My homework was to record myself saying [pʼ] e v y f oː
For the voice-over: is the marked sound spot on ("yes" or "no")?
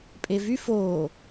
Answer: yes